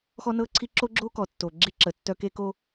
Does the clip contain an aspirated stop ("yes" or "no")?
yes